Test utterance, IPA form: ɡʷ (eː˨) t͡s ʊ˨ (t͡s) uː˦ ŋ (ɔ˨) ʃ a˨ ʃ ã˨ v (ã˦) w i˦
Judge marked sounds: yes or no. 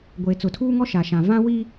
yes, no, no, yes

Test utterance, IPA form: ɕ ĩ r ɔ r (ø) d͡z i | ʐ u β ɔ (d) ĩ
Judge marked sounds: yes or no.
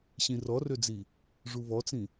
yes, no

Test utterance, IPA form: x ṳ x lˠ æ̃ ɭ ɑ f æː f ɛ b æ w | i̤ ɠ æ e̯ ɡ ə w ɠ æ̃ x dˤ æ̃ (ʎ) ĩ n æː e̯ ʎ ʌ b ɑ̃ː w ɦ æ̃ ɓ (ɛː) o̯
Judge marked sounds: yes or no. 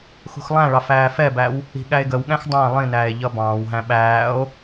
no, no

